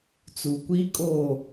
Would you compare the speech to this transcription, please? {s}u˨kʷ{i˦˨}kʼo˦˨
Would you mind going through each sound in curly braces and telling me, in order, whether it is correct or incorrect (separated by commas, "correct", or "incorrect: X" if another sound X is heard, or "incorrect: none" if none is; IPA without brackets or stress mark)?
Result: incorrect: t͡s, incorrect: i˦